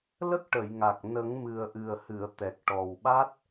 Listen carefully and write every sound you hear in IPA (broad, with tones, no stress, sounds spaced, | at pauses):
l ə˦˥ k̚ ʈ ə˨˩˨ j ŋ a˨˩ k̚ n ə˨˩˦ ŋ m ɨ˨˩ ə̯ ʔ ɨ˨˩ ə̯ h ɨ˨˩˨ ə̯ t̪ ɛ˨˩ k̚ ʈ ɔ˨˩ w ɓ a˦˥ t̚